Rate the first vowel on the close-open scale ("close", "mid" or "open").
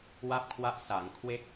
open